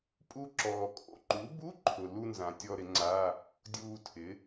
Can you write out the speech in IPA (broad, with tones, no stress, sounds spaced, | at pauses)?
pʼ u˦˨ ǁ ɔː˩ kʼ o̰˧˥˧ ǃ u˩˥ b u˧˥˧ ǃʰ ʊ˩ l u˦˨ n z ã˩ tʲ ɔ˦˨ ɾ ɪ˩˥ ŋ͡ǀ a˧˥˧ | dʲ uː˦˨ tʰ ɪ˩˥